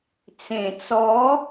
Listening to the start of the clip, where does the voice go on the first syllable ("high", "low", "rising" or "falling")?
low